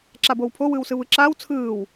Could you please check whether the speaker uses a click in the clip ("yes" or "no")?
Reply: yes